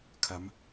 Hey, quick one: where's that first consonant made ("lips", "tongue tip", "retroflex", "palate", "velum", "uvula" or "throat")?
velum